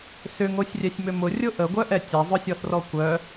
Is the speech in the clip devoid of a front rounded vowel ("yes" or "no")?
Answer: no